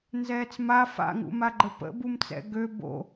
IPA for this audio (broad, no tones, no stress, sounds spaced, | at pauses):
n z ɛː t͡s m a f a̰ ŋ ṵ m a ɡ͡ǃ ə p ə̰ b u m t͡s ɛ̰ ɡ ø b o̰